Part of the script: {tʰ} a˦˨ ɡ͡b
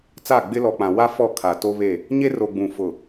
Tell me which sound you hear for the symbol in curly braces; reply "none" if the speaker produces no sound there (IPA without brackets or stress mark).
t͡s